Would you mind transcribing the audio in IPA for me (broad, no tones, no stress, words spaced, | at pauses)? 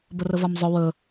bərəvamzˤɵ wɵ